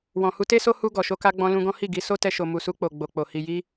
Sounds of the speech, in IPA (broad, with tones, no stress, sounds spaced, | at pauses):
w ɔ̃˨ h u˧ t e˦ s o˦ h u˧ ɡ ɔ˨ ʃ o˧ k a˧ ɡ͡b ɔ̃˧ l ũ˧ ɡ ɔ̃˦ h i˦˨ ɡ i˧ s o˦ t ɛ˧ ʃ o˨ m u˨ s u˧ k͡p o˨ ɡ͡b o˨ k͡p o˨ h i˨ j i˧